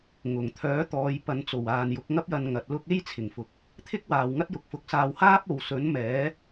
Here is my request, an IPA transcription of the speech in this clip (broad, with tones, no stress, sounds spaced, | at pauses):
ŋ ʊ˨˩ ŋ t̪ʰ œː˨˥ t̪ ɔː˨˧ j p ɐ˨˧ n t͡s o˨˩ w aː˨ n j ʊ˨˥ k̚ ŋ ɐ˥ p̚ j ɐ˧ n ŋ ɐ˨ t̚ l ʊ˥ k̚ e˥ j t͡sʰ ɪ˨˩ ŋ f ʊ˨˥ k̚ | t̪ʰ ɪ˥ k̚ w aː˨ w ŋ ɐ˥ t̚ j ʊ˨ k̚ f ʊ˨˥ k̚ s aː˧ w h aː˥ p̚ o˨ w s ɵ˨˥ n m ɛː˨˥